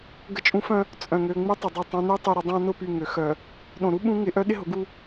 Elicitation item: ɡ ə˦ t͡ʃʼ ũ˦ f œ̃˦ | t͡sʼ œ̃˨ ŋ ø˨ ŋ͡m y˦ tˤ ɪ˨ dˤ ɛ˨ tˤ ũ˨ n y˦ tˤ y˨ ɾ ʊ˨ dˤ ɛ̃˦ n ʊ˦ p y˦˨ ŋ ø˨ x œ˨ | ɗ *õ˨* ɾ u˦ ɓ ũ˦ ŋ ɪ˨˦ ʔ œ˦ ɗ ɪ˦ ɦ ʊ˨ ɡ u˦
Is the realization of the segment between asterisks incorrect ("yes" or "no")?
no